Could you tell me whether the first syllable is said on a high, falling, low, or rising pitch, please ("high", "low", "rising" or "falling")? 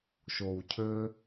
low